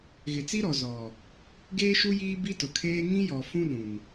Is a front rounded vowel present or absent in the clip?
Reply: absent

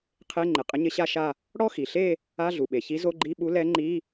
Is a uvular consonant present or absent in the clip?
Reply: present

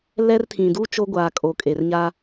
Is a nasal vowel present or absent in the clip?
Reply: present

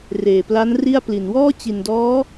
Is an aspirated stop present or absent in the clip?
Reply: absent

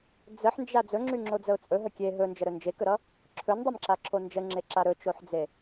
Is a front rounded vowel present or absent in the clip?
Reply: present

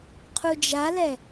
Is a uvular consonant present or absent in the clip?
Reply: present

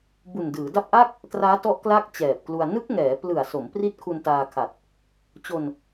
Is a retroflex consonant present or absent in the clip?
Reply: absent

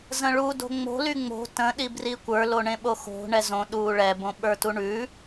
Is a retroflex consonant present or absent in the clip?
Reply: present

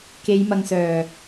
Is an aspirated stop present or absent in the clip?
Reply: absent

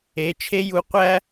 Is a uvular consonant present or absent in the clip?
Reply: present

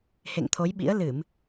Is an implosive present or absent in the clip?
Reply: present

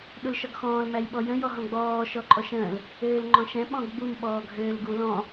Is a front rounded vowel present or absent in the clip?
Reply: present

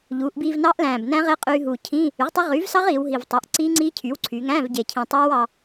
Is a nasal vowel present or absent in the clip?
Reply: present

